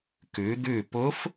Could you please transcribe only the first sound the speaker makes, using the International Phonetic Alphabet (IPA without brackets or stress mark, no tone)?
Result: k